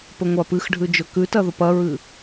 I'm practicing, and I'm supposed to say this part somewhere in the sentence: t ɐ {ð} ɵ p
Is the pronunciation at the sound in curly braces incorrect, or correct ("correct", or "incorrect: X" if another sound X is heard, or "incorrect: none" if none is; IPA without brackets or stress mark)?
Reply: correct